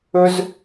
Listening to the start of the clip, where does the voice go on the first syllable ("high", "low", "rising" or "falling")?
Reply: high